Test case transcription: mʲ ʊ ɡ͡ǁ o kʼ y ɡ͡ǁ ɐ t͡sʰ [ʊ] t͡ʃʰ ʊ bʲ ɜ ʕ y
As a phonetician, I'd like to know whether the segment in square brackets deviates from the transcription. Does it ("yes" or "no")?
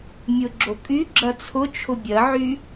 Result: no